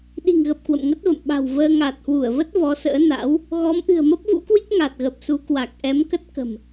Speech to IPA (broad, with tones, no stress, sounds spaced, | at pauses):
ɗ i̤˨˩ ŋ ɣ ə˨˩ p̚ k w ə̰˧˨ m ŋ ə˦˥ t̚ v ə̰˧˨ m ɓ a̤˨˩ w v əː˧ ŋ a˨˩ t̚ h w u˧˩ ə̯ v ə˦˥ t̚ v ɔ˨˦ s ə̰ː˧˥ n a̰˧˥ w | ɣ ɔ˨˦ m ʔ ɨ̤˨˩ ə̯ m ə˦˥ p̚ v ṵ˧˥ k w i˦˥ k̚ ŋ a˨˩ t̚ ɣ ə˨˩ p̚ s u˨˦ k w a˨˩ k̚ ʔ ɛ˨˦ m k ə˦˥ t̚ k ə̤˨˩ m